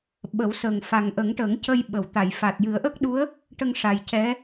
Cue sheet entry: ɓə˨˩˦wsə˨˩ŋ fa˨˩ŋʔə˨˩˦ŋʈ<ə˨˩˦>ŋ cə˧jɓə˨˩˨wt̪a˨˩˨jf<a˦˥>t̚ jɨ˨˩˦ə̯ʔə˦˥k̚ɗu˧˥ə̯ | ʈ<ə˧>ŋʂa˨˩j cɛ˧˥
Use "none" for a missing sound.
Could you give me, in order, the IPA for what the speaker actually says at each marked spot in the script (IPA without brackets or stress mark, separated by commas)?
ə˨˩˦, a˨˩, ə˧